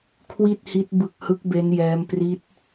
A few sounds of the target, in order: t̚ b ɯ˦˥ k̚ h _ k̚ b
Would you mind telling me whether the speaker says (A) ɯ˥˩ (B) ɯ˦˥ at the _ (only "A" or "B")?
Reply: B